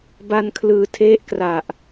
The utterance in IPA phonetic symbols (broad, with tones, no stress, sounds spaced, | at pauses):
b a˧ n kʰ l ɯː˨˩ tʰ e˦˥ ʔ k r a˨˩ ʔ